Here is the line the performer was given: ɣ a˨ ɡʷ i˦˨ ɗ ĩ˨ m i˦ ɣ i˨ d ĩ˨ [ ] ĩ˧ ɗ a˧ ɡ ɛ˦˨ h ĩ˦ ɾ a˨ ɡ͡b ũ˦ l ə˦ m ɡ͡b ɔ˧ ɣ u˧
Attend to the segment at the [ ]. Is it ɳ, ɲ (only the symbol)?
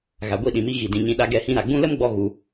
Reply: ɲ